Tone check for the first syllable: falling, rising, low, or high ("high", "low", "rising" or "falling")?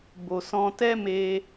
low